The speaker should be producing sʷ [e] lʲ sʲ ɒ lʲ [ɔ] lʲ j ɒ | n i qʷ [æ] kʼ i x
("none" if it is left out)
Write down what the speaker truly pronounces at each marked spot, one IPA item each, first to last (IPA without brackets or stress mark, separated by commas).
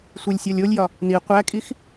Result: e, o, æ